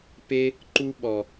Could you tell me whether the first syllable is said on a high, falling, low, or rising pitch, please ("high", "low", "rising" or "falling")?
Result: high